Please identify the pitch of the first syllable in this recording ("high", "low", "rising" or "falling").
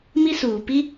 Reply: high